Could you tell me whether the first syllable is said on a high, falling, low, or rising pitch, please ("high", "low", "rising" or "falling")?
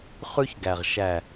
high